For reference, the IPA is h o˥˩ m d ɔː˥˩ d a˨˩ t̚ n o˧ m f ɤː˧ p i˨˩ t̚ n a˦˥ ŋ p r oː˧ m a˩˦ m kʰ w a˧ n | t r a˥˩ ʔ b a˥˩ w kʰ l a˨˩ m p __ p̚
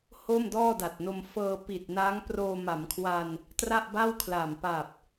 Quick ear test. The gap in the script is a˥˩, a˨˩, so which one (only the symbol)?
a˨˩